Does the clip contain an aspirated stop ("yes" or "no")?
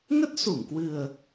no